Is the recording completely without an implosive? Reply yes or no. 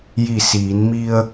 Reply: yes